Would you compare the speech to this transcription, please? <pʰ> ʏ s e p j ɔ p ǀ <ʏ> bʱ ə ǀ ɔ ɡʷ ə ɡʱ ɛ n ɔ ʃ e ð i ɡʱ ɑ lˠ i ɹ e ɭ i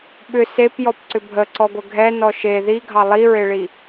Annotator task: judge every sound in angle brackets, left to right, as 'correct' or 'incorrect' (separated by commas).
incorrect, correct